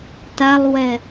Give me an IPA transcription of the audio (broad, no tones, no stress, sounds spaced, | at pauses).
t a lˠ w ɛ